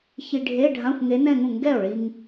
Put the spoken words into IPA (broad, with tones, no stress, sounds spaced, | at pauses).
ç i˧ ɖʱ e˧˥˧ ɖʱ ã˧˥˧ xʷ ŋ e˧˥ n ɛ̃˥˧ ŋ ũ˥˩ ŋ ɡ ɛ˥˩ o̯ ɭ i˧ ŋ